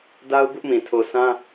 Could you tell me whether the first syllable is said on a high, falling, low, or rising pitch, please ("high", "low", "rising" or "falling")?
high